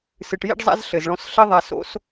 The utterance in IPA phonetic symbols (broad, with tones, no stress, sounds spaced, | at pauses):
s ɨ˨ ʈ j ḭ˦ ɖ zˤ a̰˦ z ɬ ɘ˨ z ɭ ɔ̃˧ s ɬ ɘ˧ ðˤ a˨ s o̰˧ s